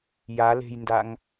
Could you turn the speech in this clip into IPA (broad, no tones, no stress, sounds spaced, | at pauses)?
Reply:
j a l e̤ j n d a ŋ